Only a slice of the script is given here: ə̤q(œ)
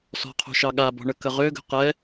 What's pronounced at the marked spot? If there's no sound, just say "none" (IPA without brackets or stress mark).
ɛ